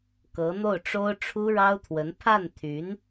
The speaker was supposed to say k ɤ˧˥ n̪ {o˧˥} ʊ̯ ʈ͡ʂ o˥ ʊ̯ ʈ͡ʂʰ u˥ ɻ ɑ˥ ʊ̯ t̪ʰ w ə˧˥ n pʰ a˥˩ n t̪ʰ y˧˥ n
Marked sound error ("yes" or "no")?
yes